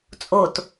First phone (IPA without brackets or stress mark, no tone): t͡sʼ